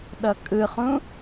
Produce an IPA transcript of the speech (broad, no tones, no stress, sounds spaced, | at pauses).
ɗ ʌ kʼ ɯ χ ũ